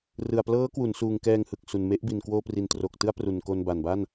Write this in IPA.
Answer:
r ɯ˨˩ a̯ p l ɤː˦˥ k w u˩˦ n s uː˨˩ ŋ k ɛː˧ ŋ h ɯ˨˩ k̚ s u˨˩ n m e˦˥ ʔ b i˨˩ n k w oː˧ p r i˨˩ n t r o˨˩ k̚ t ɯ˥˩ a̯ p r u˨˩ n k o˧ n b a˨˩ n b a˥˩ n

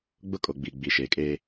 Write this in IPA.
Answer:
ɡ͡b ʊ˦ kʼ o˨ ɡ͡b i˨ ɡ͡b i˨ ʃ eː˨ kʼ eː˦

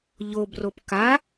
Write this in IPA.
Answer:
ʎ o b r o p k a

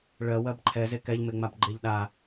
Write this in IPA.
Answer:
ɭ ɜ w ɜ b ǃʰ ɛ z e k ɛ ʎ m e ŋ͡m a b ɡ͡ǃ e ʎ ɗ a

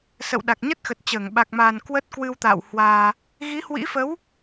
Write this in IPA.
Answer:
s ə̰˧˨ w ɗ a˨˩ k̚ ɲ ə˦˥ t̚ x ə˨˩ t̚ t͡ɕ əː˧˩ ŋ ɓ a˨˩ k̚ m aː˨˩ n k w ə˦˥ t̚ k w ɨ˧ w t̪ a̰ː˧˨ w h w aː˧ | ɣ i˨˦ h w ḭ˧˥ f ə˨˦ w

